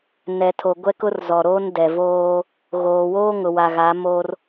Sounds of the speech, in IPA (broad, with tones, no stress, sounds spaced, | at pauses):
n ɛ˨ tʰ o˨ ɡʷ ɛ˦ k ʊ˦ r z ɔ˨ ɾ oː˦ n d ɛ˨ v oː˦ | ɣ oː˨ w oː˦ ŋ ʊ˨ w a˨ ɣ a˨˦ m o˦ r